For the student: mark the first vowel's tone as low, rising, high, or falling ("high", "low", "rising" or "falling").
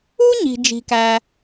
high